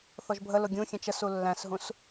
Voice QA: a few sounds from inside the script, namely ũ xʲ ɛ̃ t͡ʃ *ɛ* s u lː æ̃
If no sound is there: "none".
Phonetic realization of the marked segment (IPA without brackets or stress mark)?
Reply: ə